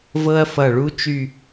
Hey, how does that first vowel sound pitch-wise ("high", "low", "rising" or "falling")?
high